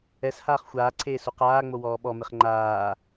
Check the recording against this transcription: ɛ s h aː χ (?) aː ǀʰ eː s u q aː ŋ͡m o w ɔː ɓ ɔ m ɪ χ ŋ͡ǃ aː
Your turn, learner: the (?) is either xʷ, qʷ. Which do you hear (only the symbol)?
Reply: xʷ